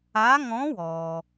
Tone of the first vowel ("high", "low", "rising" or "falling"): rising